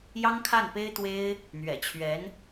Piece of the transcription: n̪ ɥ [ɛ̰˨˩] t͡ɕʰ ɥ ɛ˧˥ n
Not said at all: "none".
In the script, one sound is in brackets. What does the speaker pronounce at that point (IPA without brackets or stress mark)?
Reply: ɛ̰˨˩